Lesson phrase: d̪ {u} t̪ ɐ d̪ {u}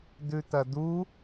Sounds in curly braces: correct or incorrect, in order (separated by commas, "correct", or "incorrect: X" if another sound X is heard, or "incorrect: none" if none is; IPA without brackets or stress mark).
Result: incorrect: ʉ, correct